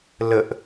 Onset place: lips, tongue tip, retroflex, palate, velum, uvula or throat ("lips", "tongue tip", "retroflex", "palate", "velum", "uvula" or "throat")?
tongue tip